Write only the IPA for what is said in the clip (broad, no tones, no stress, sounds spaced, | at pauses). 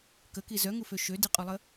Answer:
k ə k i z œ ŋ u f ø ʃ ø d i qʼ y lˠ ə